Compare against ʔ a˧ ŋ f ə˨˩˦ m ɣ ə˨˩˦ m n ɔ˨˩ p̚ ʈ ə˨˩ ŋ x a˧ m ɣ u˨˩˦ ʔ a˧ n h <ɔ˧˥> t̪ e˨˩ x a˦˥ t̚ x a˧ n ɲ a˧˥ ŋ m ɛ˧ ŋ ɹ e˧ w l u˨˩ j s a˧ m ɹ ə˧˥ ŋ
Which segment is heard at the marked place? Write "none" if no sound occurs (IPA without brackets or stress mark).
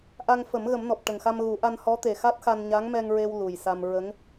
ɔ˧˥